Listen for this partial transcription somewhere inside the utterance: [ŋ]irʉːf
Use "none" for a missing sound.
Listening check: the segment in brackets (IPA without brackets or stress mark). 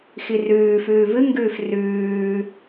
x